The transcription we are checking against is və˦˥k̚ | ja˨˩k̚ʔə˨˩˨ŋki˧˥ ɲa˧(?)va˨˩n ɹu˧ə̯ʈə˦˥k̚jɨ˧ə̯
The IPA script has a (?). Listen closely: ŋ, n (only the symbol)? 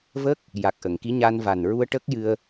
n